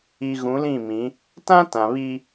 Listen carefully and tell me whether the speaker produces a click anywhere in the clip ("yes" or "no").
no